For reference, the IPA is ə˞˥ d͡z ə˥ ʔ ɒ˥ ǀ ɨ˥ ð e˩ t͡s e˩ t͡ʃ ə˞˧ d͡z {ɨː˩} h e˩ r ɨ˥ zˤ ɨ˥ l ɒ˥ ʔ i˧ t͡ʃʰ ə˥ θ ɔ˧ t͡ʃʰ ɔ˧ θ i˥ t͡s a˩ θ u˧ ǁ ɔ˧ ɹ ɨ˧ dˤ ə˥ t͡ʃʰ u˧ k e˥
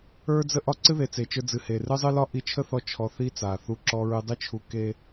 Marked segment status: incorrect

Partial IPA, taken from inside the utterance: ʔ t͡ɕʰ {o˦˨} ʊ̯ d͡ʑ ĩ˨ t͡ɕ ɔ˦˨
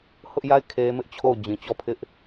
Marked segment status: correct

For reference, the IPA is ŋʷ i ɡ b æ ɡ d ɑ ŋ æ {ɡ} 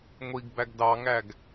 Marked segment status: correct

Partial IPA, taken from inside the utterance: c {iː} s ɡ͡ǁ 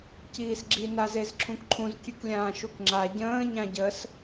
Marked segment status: correct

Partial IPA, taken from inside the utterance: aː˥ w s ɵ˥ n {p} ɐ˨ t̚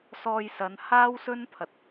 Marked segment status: incorrect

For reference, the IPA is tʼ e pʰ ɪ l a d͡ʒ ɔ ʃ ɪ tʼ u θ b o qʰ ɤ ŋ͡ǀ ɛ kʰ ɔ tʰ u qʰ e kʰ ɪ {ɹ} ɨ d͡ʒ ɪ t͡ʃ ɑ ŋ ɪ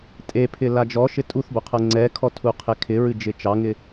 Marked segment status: correct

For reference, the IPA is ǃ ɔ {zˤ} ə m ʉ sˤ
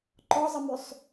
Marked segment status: correct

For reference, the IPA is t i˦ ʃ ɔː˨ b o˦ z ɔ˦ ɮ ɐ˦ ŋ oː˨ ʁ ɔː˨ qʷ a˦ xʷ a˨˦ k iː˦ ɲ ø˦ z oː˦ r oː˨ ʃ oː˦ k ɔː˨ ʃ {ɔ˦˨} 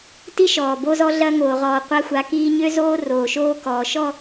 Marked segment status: correct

